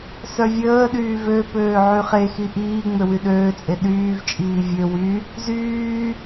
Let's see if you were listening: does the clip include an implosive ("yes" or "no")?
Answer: yes